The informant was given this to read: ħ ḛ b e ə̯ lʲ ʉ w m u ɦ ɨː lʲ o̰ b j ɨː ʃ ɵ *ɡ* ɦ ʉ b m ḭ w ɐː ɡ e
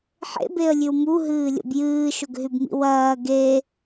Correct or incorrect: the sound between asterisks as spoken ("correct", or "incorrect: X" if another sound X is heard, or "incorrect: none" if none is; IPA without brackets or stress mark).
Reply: correct